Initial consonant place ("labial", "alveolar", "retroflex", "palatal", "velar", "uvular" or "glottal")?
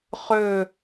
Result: uvular